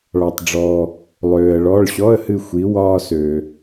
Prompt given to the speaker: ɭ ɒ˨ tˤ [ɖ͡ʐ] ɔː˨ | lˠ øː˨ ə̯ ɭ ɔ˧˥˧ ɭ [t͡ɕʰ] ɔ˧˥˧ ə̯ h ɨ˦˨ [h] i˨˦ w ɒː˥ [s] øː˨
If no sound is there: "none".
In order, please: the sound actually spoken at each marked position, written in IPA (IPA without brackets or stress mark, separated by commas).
ɖ͡ʐ, ɕ, xʷ, s